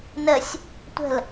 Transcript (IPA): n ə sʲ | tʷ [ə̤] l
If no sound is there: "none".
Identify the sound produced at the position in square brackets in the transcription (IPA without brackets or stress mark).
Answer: ə̤